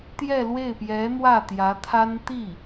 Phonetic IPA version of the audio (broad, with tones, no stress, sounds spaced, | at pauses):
t̪ j ɛ˥˧ l w e˥˩ ɪ̯ p j ɛ˧˥ n̪ w ä˥˩ t̪ j ä˧˥ t̪ʰ a˥ n t̪ i˥˩